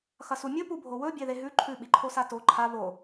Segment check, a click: present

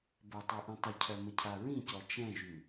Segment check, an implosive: absent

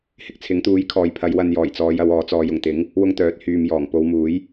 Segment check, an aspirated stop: present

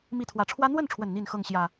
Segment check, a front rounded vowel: absent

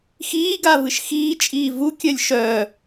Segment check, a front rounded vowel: present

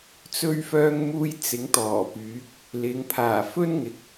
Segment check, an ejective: absent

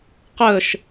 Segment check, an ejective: absent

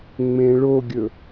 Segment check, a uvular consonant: absent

